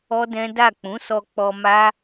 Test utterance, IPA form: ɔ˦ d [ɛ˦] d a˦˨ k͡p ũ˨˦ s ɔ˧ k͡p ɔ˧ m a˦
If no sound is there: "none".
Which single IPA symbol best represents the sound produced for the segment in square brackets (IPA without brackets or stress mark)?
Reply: ɛ̃˦